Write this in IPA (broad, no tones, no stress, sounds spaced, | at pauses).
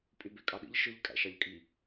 pʼ y b e kʼ ɑ ɗ ḭ ʎ ʃ ɯ ʎ kʼ æ̰ ʃ ɑ ʎ kʼ i